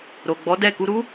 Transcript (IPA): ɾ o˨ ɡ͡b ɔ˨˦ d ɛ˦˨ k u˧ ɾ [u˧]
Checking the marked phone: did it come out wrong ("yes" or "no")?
yes